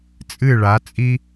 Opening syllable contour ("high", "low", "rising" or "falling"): falling